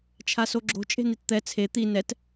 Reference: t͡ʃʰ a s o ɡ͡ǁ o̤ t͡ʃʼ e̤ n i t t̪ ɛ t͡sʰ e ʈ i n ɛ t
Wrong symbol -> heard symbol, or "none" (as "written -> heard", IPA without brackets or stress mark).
ʈ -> t̪